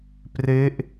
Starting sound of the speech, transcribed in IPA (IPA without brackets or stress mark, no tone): p